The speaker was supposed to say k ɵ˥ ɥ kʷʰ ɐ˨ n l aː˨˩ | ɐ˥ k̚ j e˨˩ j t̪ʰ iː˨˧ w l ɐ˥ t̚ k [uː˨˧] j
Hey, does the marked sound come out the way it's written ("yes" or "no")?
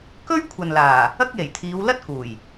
no